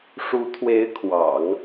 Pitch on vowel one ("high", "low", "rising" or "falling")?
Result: rising